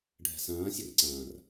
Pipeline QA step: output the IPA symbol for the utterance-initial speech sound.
ɖʱ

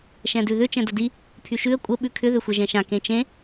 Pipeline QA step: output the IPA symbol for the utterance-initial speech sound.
ʃ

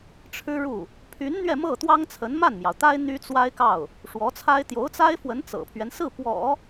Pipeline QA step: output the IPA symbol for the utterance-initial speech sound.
ʈ͡ʂʰ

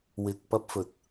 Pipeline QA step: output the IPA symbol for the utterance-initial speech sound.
w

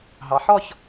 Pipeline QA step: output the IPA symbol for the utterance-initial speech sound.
ɦ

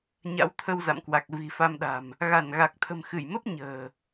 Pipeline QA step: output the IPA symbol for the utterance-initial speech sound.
ɲ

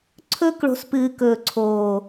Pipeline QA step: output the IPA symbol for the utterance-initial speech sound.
ǀʰ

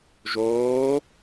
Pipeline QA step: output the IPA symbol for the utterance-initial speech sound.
ʒ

